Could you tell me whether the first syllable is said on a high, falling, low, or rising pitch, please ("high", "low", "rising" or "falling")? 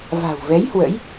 low